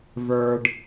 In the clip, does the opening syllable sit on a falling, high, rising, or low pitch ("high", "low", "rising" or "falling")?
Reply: low